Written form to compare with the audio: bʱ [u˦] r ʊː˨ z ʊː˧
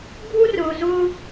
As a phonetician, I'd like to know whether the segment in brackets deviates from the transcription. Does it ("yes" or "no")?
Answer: no